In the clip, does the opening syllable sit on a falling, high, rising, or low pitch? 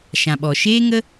low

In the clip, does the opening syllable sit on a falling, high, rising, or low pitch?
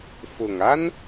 low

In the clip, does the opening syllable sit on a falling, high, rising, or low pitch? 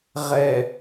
low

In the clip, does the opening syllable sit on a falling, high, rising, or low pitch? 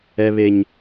low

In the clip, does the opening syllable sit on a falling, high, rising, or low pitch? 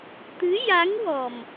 rising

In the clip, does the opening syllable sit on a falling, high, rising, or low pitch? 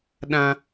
high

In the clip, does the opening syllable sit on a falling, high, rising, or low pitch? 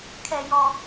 low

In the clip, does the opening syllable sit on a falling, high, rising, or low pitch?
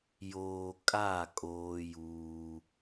low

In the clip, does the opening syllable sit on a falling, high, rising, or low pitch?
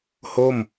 falling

